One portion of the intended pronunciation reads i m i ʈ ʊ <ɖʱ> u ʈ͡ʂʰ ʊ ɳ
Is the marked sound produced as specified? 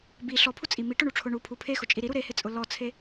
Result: no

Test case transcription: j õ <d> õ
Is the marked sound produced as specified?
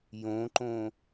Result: no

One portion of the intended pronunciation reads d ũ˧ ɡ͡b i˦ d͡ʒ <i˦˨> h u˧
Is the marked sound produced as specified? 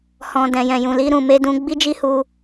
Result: no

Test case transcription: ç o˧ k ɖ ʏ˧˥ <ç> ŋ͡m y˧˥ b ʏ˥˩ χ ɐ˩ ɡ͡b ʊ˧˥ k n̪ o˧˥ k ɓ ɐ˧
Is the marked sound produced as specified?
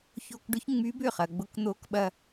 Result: yes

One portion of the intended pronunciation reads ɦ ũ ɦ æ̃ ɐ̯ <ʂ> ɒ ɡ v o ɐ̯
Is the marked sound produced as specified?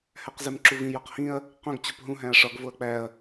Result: yes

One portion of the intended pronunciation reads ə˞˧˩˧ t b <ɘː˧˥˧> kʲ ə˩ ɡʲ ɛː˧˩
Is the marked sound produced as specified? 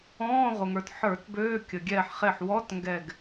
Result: no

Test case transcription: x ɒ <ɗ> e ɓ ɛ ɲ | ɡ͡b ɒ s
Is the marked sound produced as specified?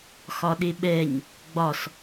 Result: yes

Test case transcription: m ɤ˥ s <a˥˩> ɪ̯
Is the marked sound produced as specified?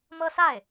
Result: yes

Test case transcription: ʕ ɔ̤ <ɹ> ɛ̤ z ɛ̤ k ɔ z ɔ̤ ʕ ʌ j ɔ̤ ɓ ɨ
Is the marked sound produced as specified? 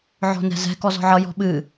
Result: no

